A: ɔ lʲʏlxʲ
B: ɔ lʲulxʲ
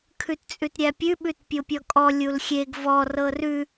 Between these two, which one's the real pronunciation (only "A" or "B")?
B